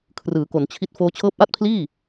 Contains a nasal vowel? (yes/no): no